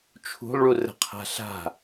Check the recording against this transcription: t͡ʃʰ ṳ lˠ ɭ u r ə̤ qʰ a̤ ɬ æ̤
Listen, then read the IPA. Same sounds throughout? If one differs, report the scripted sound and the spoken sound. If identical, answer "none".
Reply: æ̤ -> a̤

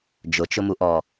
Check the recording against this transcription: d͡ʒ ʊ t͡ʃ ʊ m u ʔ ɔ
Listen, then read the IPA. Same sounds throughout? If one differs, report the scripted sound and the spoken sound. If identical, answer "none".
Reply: none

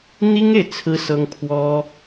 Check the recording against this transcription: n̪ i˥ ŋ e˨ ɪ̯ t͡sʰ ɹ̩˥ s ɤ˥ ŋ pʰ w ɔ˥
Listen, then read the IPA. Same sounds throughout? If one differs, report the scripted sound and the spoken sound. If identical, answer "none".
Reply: none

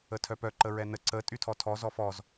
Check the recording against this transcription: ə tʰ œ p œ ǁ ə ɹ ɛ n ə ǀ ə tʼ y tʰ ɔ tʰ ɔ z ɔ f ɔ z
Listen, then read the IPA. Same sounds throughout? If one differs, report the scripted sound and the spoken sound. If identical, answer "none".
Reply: ǁ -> ǃ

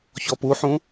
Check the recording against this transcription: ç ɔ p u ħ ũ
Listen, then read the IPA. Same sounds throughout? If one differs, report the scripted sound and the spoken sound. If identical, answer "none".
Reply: none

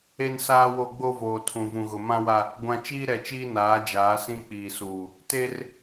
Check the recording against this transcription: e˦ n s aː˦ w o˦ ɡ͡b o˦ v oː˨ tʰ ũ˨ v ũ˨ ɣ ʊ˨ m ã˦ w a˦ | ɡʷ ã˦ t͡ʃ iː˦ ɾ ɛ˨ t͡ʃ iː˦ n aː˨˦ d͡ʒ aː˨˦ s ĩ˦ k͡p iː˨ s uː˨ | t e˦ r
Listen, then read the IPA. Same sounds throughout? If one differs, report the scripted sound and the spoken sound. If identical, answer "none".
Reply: none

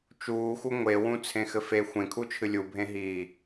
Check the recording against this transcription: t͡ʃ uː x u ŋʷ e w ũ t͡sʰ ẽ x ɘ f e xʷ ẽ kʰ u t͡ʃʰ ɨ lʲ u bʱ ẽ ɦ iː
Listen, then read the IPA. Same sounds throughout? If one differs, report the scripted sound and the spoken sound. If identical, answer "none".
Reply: none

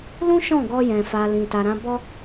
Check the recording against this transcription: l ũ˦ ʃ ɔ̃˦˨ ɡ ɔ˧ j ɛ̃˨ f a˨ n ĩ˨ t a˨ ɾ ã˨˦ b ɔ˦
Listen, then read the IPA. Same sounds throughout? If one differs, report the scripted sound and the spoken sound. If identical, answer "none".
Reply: n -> l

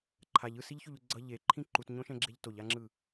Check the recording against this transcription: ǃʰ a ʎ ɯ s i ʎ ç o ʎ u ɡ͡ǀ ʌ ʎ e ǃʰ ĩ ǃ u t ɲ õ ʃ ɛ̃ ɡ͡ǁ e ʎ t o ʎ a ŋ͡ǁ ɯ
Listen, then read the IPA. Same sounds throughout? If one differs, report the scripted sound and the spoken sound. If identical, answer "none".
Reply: none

